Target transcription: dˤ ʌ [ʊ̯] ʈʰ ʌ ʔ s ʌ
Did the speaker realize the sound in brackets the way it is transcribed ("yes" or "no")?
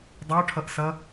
yes